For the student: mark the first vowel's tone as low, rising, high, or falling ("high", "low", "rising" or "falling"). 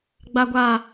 high